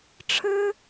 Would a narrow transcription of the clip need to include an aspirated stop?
yes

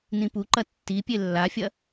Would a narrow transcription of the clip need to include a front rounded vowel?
no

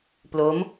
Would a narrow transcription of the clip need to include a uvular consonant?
no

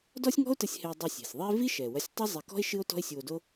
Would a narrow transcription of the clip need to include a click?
no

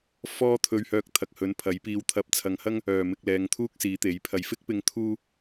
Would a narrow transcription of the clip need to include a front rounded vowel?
yes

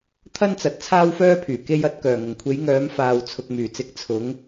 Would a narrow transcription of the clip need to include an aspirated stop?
yes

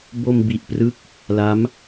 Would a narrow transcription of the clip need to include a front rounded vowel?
no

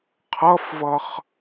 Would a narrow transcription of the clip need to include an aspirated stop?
yes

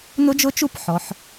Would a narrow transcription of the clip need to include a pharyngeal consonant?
yes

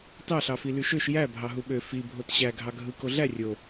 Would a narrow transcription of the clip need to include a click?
no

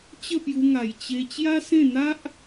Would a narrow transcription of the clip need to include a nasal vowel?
yes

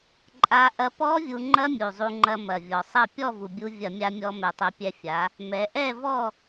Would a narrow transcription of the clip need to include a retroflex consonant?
no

